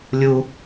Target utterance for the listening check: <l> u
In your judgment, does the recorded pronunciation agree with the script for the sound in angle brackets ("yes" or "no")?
no